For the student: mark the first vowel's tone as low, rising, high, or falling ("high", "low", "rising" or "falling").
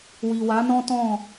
low